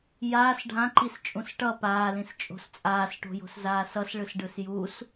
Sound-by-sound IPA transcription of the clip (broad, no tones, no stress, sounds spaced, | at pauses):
j aː s ɖʱ ã ǃ i s t͡ʃʼ ũ s ʈ ʌ p aː l ĩ s t͡ʃʼ o̤ s t͡sʼ aː s ʈ o̤ j o̤ s z aː s ʌ s ɭ ɯ s ɖ ɯ s j u s